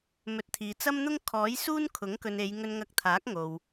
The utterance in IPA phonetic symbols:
mɵ˨˥t̚t̪ʰiː˨t͡sɐ˥mn̪ʊ˥ŋ kʰɔː˨˥jsuː˥n kʰʊ˨˥ŋkɵ˨ne˨˧j ŋɵ˧nŋɐ˧k̚t̪ʰaː˨˥k̚ ŋo˨w

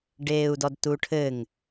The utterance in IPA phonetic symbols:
ɖeːu̯dɔdtuʈʰɘŋ

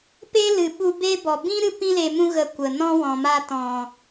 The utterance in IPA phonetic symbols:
pe˦lɨ˨ɓu˧ be˦ bɔ˨bĩ˦ ɾɨ˦pĩ˦ le˧mũ˦ ɣə˧kʷə˨nɔ̃˦ wɔ̃˨ma˦ tɔ̃˨

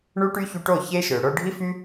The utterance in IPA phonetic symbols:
ɳu˦ʈy˦çu˧ʈo˦˨ çe˦ʃø˨ ɽo˧ɖʱi˦fy˦

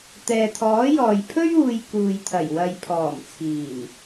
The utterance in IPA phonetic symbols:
t̪ɛː˨t̪ʰɔː˨˥jɔː˨j pʰɵ˥ɥuː˨j kuː˨jt̪ʰɐ˨˩j wɐ˨jpʰɔː˨˩mt͡sʰiː˨˩n

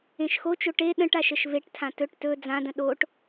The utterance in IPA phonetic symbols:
ẽʃxot͡ʃo ʈe ɗə̃ʈ aʃəʃveʈtʰã tɵʈ tɵ d͡zãdə̃ ɗoʈ

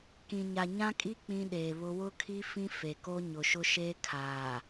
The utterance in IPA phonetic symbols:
kĩ˨ɲa˨ ɲã˦kʼi˦ k͡pĩ˦ɗeː˨βʊ˦ wʊ˦kʰi˦ fĩ˦fe˨ko˦ ɲʊ˨ʃʊ˦ ʃeː˦kʰaː˨

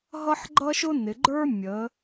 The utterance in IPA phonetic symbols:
ɦʌ˥ħɡ͡ǃʌ˥ʃʊ˥ nɪ˩˧ɡ͡ǃə˞˥ mʲəː˩˧

